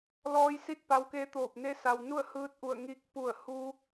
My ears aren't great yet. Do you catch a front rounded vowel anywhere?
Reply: no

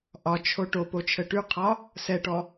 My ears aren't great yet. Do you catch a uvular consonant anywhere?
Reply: yes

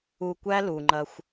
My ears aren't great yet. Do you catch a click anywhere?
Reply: yes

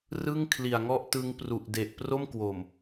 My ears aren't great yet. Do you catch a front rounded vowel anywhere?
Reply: no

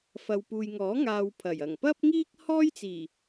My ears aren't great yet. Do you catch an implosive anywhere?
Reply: no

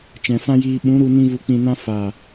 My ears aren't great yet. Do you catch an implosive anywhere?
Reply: yes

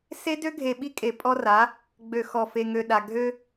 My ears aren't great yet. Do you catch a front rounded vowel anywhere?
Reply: yes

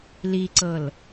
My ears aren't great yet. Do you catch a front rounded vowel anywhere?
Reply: no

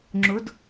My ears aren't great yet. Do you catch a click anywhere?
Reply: yes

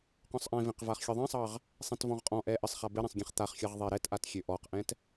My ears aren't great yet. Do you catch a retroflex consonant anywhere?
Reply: no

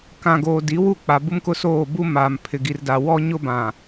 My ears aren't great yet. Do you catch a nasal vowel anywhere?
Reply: yes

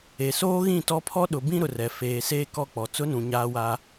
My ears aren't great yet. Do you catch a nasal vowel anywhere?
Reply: yes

